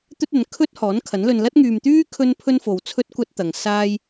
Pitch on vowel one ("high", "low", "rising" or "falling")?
high